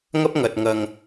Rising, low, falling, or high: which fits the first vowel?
high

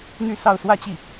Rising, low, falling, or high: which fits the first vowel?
falling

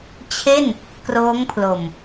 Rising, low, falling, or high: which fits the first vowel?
falling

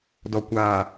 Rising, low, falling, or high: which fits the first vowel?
low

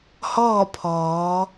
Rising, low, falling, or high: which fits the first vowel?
falling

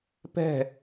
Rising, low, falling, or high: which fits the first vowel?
falling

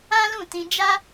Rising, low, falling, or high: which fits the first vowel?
high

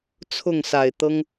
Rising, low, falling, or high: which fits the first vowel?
falling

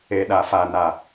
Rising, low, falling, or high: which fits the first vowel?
low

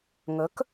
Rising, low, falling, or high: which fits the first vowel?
rising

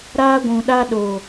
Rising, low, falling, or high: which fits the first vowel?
high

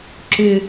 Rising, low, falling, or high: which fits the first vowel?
high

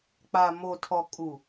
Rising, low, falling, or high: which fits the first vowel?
low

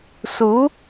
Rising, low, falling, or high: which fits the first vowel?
rising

